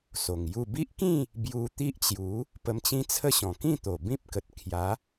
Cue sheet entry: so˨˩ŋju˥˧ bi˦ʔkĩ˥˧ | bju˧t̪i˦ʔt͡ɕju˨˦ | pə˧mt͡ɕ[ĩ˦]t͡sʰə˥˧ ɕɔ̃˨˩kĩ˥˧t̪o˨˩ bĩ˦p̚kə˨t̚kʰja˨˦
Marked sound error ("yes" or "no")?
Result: no